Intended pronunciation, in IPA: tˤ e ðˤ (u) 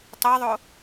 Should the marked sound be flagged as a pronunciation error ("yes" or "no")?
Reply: yes